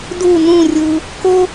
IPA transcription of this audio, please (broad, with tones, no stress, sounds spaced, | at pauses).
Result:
d u˥˧ n ũ˥˧ rʲ ɯ˧ | k o˥